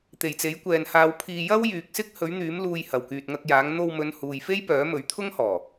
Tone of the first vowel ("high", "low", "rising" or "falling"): low